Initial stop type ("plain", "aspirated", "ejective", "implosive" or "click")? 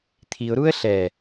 aspirated